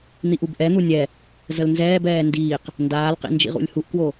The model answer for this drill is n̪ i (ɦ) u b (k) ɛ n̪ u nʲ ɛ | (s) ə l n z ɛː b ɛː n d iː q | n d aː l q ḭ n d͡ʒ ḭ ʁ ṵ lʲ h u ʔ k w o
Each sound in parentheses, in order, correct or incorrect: incorrect, incorrect, incorrect

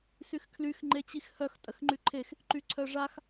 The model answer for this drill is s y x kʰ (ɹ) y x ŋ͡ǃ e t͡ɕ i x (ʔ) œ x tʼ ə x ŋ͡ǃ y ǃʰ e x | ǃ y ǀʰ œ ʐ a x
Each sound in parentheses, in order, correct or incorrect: incorrect, incorrect

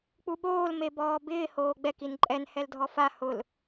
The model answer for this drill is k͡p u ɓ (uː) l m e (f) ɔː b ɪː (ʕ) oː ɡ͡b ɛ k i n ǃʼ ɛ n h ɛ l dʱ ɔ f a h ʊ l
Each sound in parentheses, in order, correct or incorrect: incorrect, incorrect, incorrect

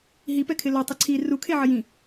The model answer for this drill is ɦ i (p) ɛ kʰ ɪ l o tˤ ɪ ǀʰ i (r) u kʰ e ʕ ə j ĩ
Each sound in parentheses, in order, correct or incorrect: correct, correct

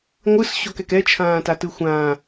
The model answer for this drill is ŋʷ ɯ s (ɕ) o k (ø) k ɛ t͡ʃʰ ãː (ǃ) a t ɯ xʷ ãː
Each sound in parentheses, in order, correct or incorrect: correct, incorrect, incorrect

